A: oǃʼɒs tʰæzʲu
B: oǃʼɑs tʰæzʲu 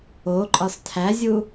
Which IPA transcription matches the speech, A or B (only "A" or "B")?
A